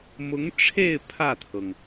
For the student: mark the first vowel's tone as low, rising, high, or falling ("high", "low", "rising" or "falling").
rising